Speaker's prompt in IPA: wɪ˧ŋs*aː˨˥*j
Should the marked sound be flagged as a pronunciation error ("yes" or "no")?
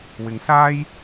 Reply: yes